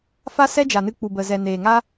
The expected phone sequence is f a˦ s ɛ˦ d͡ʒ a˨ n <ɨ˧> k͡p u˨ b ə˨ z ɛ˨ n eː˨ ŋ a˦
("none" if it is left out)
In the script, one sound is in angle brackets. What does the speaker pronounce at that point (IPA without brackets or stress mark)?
ɨ˧